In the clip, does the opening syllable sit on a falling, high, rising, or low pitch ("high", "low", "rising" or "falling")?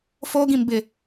high